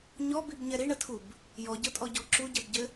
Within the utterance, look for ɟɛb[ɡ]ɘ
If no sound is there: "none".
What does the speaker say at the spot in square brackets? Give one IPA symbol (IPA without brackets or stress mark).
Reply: ɟ